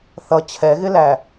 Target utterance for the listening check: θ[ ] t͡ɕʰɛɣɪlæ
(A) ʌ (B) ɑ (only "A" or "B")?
A